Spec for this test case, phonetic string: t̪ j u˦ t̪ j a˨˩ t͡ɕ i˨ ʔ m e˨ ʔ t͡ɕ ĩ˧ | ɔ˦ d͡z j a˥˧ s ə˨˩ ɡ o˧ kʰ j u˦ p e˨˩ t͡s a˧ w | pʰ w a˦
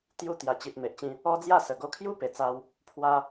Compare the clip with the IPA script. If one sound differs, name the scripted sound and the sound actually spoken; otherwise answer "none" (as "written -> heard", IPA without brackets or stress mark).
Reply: none